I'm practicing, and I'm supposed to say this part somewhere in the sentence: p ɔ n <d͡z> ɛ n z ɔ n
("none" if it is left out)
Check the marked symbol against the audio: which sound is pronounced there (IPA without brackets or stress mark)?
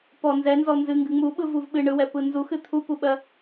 z